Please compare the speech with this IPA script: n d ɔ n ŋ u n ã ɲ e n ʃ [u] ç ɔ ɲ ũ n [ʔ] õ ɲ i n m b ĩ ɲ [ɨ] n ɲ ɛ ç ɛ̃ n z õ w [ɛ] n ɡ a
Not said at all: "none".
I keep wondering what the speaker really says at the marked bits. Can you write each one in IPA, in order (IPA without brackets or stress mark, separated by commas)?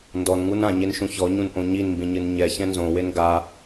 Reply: ũ, ʔ, ɨ, e